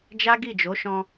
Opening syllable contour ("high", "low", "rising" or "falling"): high